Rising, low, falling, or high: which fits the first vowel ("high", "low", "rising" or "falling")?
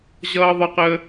high